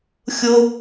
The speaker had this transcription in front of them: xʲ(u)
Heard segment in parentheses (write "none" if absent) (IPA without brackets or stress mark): ʊ